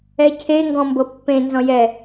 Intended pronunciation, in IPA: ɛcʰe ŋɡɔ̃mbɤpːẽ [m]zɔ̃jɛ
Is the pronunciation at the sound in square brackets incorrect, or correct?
incorrect